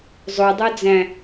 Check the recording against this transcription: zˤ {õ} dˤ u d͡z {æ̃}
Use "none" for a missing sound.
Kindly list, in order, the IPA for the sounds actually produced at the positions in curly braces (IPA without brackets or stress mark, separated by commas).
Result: o, æ̃